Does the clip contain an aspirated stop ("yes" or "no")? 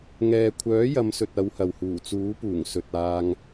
yes